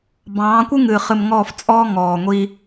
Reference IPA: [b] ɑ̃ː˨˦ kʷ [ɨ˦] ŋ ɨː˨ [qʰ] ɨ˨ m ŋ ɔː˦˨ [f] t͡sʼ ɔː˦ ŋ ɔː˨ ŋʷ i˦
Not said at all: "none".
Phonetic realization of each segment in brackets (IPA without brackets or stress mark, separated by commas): b, ɨ˦, χ, f